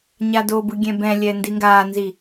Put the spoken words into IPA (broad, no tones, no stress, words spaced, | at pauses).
ɲadobɯ ɡʲɛ̃bɛ̃lʲɛ ndiŋɡaːnzi